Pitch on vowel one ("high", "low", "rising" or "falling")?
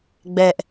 high